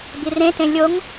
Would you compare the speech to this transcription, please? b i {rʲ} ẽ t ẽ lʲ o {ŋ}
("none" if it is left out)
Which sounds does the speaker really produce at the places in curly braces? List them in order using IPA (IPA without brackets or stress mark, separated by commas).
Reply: r, ŋ